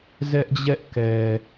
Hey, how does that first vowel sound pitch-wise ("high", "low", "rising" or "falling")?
high